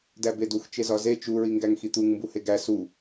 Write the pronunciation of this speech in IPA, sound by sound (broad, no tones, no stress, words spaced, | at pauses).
dæbedux t͡ʃezɒze t͡ʃu ɹiŋɡæŋxit̪uŋ mbuheɡæ su